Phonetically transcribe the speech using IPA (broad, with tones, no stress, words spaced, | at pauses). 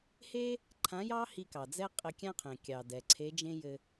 he˥ | ǃʰã˧˥jɑ˥hi˧ kɑ˩d͡zɛ˥ qʼɘ˧kʲã˥qʰẽ˩ kʲɑ˩dɛ˩ ǀʰe˧˥ d͡ʒẽ˥jɘ˧